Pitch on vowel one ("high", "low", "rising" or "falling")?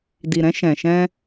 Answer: low